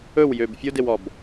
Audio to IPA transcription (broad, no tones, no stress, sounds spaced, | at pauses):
ɵ w j ø b fʲ o d e w ɔ b